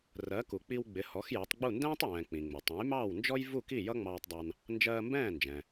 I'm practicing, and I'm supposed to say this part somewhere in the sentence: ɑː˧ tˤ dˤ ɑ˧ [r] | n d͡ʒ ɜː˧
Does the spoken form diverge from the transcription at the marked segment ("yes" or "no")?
yes